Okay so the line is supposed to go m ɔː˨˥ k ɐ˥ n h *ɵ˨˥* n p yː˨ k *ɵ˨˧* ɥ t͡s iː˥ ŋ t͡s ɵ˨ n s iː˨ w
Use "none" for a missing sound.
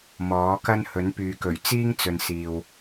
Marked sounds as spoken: ɵ˨˥, ɵ˨˩

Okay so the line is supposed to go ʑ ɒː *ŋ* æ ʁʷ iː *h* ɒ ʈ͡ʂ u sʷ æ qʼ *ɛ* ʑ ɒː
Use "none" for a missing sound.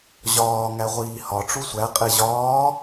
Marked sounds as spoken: ŋ, h, e

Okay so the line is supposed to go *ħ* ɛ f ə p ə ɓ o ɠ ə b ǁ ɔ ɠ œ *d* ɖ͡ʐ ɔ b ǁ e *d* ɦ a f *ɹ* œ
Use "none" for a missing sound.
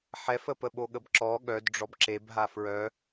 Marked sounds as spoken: ħ, d, b, ɹ

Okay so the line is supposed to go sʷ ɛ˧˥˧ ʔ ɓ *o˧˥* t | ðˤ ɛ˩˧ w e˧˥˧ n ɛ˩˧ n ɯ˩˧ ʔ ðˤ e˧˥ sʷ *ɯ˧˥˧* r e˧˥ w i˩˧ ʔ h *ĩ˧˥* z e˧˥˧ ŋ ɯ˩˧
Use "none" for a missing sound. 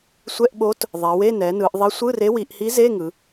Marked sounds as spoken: o˧˥, ɯ˧˥˧, i˧˥

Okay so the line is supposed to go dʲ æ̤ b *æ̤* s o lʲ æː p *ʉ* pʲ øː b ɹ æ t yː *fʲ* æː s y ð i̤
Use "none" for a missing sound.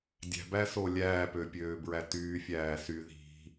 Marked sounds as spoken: æ, ø, fʲ

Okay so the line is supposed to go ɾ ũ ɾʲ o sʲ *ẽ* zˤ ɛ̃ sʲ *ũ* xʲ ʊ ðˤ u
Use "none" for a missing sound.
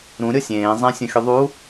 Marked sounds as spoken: ẽː, ũ

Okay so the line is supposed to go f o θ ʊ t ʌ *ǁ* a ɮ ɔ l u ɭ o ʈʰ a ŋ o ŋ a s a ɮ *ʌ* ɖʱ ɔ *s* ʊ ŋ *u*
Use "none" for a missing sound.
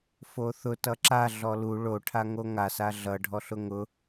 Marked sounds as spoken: ǁ, ʌ, ɬ, ʊ

